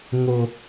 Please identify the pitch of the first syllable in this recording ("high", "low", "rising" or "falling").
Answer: low